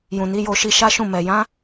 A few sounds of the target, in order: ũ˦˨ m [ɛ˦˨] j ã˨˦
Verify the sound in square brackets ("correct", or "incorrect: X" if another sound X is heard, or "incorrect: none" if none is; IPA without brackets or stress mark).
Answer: incorrect: ɛ˨